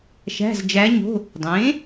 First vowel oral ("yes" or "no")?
yes